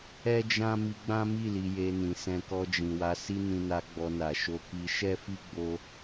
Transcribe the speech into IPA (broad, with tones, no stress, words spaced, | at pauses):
ɛ˦d͡ʒã˦ mi˧ɡ͡bã˦mi˦˨ li˧je˧nĩ˨ sɛ̃˧kɔ˧d͡ʒĩ˨ wa˧si˦nĩ˧na˧ ɡ͡bɔ˧na˨ ʃo˧ki˧ ʃɛ˦fi˦ ɡ͡bo˦